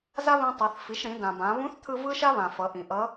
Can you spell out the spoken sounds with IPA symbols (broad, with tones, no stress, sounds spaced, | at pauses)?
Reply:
z a˥ β ĩ˧ tˤ ɤ˩˧ θ f i˩˧ ʃ ɾ ĩ˩˧ d ã˩ b ã˩˧ β ũ˧˥ θ t̪ʰ ɯ˧ v ɯ˥ ʃ a˥ β ã˩ f ʌ˩˧ ʔ ĩ˩ ʔ ʌ˧˥